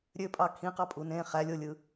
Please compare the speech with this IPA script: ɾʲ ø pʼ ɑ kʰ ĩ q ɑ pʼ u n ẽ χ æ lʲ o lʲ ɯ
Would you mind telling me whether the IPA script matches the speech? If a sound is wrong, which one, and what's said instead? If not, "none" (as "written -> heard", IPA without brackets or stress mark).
none